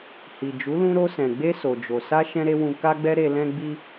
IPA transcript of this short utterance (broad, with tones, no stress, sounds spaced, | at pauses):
h i˨ d͡ʒ u˨˦ l ũ˧ ɾ o˧ s ɛ̃˨ ɡ͡b e˧ s o˨ d͡ʒ o˨ s a˧ ʃ ɛ̃˦ ɾ e˦ w ũ˧ k a˦ ɡ͡b ɛ˦ ɾ e˧ l ɛ̃˧ ɡ͡b i˧